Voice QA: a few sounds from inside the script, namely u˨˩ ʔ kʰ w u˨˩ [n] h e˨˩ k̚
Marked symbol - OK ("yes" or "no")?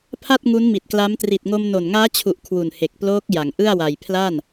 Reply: yes